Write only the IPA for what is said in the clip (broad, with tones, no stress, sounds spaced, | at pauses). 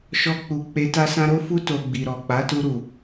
ʃ ɔ˧ k͡p u˨ k͡p e˧ t a˦ s ã˦ ɾ o˦ f u˦ t o˧ ɡ͡b i˨ ɾ ɔ˨ k͡p a˨˦ t u˧ ɾ u˨